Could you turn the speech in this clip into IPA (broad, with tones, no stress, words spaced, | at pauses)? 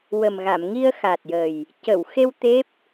wə˨˩mɣa˨˩˨m ŋi˧ə̯xa˨˩t̚jə˨˩j | cə˨˩˨wxe˧w t̪e˦˥p̚